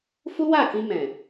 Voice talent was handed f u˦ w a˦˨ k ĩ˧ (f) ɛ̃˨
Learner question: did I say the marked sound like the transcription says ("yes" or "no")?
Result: no